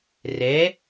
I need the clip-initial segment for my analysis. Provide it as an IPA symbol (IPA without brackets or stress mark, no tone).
r